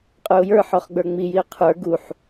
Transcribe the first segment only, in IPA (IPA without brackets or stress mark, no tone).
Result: qʼ